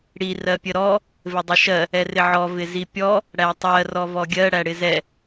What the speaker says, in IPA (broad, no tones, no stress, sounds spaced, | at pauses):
ɽ i r ɜ pʲ ə ɾ ɔ | v ɪ dˤ ɪ ʃ ɜ | ɛ r ɪ ʕ ɔ v ɪ z i pʲ ɔ | ɽ æ tˤ ɜ r ɔ v ɔ ɡʲ ɜ ɽ æ ɽ ɪ z ɛ